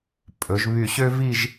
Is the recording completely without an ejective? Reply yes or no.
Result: no